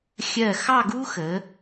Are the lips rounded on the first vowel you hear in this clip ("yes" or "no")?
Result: no